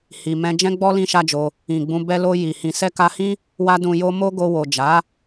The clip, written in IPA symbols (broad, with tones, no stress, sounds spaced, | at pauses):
h i˨ m ɛ̃˧ d͡ʒ ɛ̃˦ ɡ͡b ɔ˦ l ĩ˦ ʃ a˦ d͡ʒ o˧ | ĩ˨ ɡ͡b ũ˧ b ɛ˧ l o˧ j i˨ h ĩ˨ s ɛ˧ k a˧ h ĩ˦ | w a˦ d ũ˧ j o˦ m o˦ ɡ o˧ w o˨ d͡ʒ a˨˦